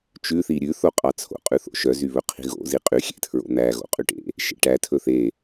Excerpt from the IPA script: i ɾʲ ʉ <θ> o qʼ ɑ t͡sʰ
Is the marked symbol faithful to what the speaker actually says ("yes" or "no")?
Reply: yes